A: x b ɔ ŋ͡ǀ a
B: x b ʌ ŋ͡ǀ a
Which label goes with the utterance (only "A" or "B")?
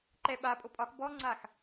A